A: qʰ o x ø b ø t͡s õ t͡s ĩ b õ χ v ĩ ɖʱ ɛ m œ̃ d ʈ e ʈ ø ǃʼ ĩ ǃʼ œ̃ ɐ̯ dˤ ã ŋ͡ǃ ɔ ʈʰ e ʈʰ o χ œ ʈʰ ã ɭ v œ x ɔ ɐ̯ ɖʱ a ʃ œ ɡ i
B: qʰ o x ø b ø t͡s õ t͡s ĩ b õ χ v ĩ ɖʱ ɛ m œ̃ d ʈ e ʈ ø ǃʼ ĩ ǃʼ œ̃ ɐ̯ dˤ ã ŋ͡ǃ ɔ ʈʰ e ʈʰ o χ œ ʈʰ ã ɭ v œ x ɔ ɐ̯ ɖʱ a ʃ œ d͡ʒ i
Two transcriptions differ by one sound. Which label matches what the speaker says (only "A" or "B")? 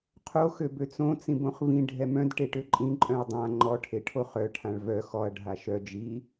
B